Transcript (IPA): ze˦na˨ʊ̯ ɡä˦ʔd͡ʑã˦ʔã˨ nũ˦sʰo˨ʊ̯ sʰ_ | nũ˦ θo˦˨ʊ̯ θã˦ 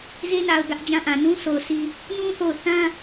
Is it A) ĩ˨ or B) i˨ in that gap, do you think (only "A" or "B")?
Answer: B